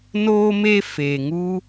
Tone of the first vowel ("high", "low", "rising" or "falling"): high